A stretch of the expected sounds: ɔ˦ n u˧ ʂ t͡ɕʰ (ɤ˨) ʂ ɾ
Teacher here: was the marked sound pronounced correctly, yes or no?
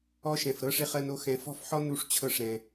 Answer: no